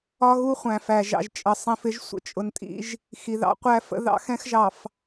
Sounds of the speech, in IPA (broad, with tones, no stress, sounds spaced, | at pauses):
ɒ˦ ɣ u˦ χʷ æ̃˨ f æ˨ ʒ ɑ̰˨ ʒ t͡ʃʼ ə˨ sˤ ĩ˨ f ɪ˦ ʒ sʷ ə̰˦ t͡ʃʼ ʊ˨ n tʼ ḭ˦ ʒ | x i˨ ð ɑ̰˦ qʷ æ˦ f ə̰˦ ð ɑ̰˦ x ɛ̃˦ x ʒ ɑ˨ f